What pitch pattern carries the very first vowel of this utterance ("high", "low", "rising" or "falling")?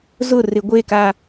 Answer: falling